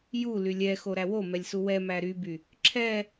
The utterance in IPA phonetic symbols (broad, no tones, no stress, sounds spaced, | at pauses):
j u l y lʲ ɛ x o ɾ æ w o m ɛ lʲ s u w ɛ m æ ɾ y b y | ǁʰ ɛ